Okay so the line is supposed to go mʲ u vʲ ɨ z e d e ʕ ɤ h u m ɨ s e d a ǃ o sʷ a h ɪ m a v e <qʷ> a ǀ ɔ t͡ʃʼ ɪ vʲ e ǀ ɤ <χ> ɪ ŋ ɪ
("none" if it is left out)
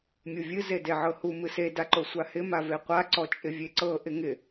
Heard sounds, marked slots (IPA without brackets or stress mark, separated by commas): qʷ, ʔ